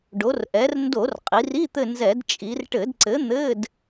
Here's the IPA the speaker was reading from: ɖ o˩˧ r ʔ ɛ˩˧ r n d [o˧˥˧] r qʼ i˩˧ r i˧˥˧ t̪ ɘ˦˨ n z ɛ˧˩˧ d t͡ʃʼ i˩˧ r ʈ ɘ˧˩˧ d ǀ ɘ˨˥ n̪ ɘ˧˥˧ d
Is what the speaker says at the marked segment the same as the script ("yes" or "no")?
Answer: no